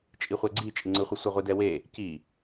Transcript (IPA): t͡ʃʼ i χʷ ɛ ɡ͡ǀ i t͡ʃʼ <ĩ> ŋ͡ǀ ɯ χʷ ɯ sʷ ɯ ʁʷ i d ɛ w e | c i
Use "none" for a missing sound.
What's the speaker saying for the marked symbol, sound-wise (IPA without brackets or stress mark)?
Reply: i